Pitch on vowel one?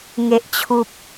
low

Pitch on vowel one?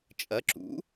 rising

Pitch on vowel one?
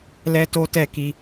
high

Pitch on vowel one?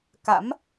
rising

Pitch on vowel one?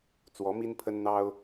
rising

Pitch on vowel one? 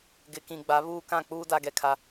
low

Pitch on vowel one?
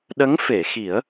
rising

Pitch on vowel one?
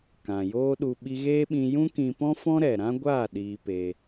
low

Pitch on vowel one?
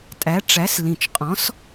rising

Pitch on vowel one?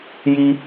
high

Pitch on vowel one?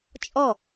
falling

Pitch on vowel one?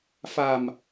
low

